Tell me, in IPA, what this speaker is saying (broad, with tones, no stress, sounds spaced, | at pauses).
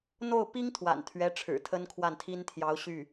n̪ o˥˩ ʊ̯ p i˥ ŋ t̪ʰ w a̰˨˩ n t̪ʰ ɥ ɛ˧˥ ʈ͡ʂʰ ɻ̩˨˩ t̪ʰ ə˥ n kʰ w a˥˩ n t̪ʰ i˥ n t̪ʰ j ɑ˧˥ ʊ̯ ɕ y˥˩